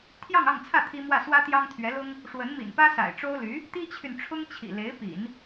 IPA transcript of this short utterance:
t̪ʰjɑ˥˧ŋɑ˥˧ŋt͡sʰä˥˩ t̪ʰi˥mwä˥˩ swä˥t̪jɑ˥ŋt̪ʰɥɛ˧˥lʊ˥ŋ | ʂwə˧˥nmḭ˨˩npä˥ sa̰˨˩ɪ̯ʈ͡ʂo˥ʊ̯ly˧˥ | t̪i˥t͡ɕʰy˨nʈ͡ʂʰʊ˥ŋ t͡ɕʰḭ˨˩le˧˥ɪ̯pḭ˨˩˦n

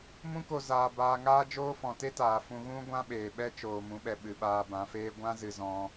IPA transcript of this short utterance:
mũ˦ko˧ zaː˧ baː˧ŋaː˦d͡ʒoː˦ fɔ̃˨te˦taː˨ fũ˧ɣũ˦ ɡʷã˦ɓeː˨ ɓɛ˦t͡ʃoː˨mũ˨˦ɓɛ˨ ɓɨ˨ɓaː˧bã˨˦feː˦ ɡʷã˦zɨ˨ zɔ̃˧

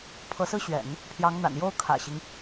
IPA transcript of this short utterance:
pʰɤ˧˥sɹ̩˥ɕɥɛ̰˨˩˦n | pʰjɑ˧˥ŋn̪a̰˨˩n jo˥ʊ̯kʰä̰˨˩ɕi˦ŋ

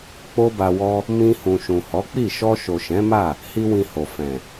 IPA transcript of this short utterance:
k͡po˦ba˧wɔ˦ | mĩ˧ hũ˨ʃũ˨hɔ˨˦k͡pi˦˨ ʃɔ˧ʃo˨ʃɛ̃˨˦ma˦˨ | hi˦wĩ˧ho˨ fɛ̃˨

